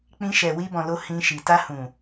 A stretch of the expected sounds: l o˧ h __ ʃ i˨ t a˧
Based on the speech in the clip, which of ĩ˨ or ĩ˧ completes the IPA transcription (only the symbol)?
ĩ˧